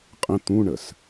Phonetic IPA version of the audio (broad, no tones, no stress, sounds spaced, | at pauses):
qʼ ə̃ t̪ ũ ɳ ə s